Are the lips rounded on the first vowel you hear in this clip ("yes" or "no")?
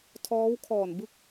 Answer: yes